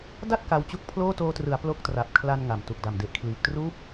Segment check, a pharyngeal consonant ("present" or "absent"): absent